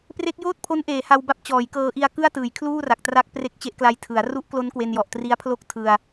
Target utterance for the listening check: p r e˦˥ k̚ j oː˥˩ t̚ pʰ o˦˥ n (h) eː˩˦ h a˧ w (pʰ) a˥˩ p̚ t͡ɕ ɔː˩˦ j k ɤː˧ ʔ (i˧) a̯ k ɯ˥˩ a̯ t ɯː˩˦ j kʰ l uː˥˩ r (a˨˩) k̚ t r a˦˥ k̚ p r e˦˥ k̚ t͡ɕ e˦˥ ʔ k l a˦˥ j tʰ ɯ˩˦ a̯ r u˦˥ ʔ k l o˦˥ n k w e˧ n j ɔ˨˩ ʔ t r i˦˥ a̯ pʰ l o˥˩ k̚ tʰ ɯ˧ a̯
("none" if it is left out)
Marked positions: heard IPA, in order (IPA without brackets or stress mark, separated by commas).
ʔ, b, i˧, a˨˩